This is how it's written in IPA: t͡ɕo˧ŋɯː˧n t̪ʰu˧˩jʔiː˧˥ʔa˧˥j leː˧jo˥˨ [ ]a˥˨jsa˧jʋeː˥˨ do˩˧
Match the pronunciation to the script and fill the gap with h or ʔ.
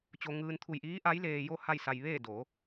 h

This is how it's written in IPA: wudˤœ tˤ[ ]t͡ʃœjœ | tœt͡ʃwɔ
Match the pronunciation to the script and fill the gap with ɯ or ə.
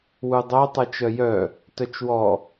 ɯ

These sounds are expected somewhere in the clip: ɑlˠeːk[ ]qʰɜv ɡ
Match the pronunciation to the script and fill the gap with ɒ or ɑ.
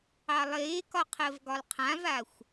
ɒ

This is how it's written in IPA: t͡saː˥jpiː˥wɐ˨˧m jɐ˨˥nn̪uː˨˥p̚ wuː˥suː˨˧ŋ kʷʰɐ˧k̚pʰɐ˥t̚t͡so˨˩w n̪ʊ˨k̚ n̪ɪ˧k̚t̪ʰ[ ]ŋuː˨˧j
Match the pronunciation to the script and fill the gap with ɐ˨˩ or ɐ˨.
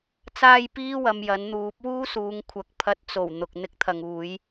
ɐ˨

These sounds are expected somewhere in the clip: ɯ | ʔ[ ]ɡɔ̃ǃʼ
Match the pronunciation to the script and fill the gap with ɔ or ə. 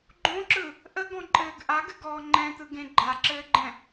ə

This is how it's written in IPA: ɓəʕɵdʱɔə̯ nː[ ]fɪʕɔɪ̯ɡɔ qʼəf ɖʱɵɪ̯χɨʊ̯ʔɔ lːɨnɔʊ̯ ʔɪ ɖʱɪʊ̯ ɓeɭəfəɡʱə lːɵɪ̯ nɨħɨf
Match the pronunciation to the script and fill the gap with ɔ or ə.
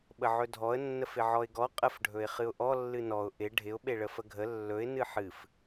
ə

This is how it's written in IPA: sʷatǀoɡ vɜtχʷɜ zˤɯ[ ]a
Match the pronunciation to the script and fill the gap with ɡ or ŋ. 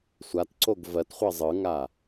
ŋ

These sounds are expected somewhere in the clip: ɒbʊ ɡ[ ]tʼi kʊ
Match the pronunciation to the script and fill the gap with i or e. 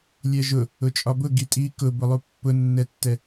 i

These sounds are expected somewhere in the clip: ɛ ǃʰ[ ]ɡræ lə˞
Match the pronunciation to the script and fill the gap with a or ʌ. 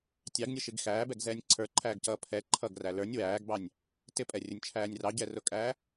ʌ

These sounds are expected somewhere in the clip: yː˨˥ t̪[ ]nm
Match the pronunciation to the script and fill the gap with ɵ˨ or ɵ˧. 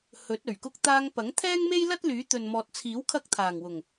ɵ˨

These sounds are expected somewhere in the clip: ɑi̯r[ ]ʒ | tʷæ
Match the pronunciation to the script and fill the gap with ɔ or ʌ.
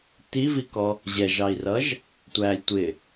ʌ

